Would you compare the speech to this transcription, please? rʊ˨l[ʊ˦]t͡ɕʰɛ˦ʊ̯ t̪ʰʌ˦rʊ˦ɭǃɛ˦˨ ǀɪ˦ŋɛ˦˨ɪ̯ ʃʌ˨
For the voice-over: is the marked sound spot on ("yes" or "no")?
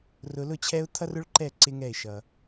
no